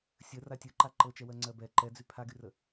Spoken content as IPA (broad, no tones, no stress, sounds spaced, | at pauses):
sʲ ə r a tʲ ə˞ ǃ a ǃ ɤ t͡ʃ ɛ w ɜ ŋ͡ǀ ɜ b ɛ ǃ ɛ d͡z y pʰ a ɡ y r ə